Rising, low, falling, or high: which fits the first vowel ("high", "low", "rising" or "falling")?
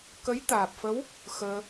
rising